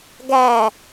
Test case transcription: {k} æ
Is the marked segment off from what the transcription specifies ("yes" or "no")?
yes